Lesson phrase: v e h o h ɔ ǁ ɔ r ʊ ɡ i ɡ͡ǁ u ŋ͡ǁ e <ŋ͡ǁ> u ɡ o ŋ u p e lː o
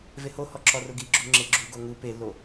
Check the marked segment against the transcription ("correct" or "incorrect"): incorrect